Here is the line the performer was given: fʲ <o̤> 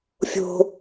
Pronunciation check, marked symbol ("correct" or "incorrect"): correct